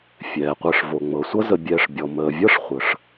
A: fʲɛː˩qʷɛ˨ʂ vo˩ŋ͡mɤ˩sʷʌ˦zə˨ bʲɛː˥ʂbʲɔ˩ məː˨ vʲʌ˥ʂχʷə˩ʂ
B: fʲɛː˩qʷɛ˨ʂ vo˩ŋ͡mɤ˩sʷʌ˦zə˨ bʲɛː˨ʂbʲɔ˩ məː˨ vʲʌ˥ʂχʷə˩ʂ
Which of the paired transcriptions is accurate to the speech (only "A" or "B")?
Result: B